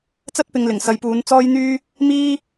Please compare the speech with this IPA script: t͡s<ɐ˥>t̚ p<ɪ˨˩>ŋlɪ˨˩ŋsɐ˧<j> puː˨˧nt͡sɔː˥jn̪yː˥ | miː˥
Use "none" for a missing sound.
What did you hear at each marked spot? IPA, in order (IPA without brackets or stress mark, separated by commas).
ɐ˥, ɪ˧, j